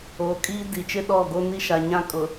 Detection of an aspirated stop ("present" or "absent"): absent